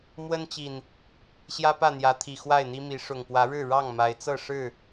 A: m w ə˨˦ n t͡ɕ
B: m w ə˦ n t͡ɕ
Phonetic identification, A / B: B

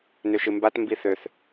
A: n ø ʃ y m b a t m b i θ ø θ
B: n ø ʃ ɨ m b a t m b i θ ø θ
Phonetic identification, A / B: B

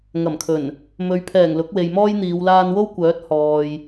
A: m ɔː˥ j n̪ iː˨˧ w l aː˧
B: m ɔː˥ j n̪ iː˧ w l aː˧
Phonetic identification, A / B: A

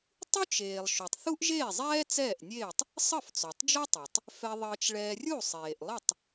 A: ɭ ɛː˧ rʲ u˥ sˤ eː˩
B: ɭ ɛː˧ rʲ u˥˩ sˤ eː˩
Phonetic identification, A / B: B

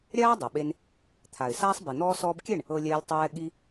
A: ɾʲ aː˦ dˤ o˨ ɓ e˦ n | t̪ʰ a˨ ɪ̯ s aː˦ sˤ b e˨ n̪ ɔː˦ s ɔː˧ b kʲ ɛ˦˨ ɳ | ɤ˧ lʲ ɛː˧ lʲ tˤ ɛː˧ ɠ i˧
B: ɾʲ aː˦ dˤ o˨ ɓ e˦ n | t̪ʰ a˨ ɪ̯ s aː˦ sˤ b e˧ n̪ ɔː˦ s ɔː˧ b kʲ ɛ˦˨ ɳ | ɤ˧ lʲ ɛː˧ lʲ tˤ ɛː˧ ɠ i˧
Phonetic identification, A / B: A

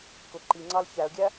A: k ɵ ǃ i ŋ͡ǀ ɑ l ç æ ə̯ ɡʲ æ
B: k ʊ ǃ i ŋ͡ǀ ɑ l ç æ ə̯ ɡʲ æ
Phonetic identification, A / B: B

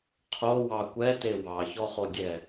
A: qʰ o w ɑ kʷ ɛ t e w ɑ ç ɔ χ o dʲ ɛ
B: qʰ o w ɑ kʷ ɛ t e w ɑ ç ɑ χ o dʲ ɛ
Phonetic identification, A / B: A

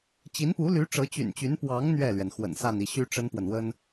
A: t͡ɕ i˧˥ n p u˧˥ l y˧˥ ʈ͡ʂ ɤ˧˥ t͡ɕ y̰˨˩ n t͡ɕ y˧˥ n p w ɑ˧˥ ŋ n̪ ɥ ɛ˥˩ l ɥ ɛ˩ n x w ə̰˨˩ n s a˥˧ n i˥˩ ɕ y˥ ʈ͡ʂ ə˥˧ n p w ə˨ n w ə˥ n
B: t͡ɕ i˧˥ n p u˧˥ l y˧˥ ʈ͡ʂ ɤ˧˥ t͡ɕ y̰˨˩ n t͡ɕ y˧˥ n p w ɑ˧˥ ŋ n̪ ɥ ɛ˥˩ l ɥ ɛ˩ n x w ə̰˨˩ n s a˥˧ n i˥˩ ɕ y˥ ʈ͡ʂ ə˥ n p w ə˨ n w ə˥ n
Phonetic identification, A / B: B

